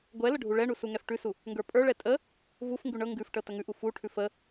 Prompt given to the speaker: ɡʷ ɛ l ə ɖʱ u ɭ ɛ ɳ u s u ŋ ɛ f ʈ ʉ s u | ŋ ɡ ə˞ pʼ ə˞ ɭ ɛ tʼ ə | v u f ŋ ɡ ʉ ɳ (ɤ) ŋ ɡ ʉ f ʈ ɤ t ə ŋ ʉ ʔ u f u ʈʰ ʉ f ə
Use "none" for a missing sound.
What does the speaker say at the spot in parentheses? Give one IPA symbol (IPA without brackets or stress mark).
ɤ